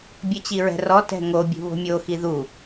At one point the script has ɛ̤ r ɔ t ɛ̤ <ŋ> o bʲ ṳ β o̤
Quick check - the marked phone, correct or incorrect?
correct